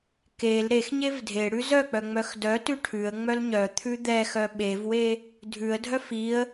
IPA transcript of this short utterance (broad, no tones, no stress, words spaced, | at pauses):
kel ɾex ɲevdʱeɽʉ zœk͡pœ ŋ͡mœxdœtʉ ʈʰʉə̯ŋ͡mœl ɲœ t̪ʰʉd̪ɛxœ ɓevwe | dʱʉə̯dʱœf iə̯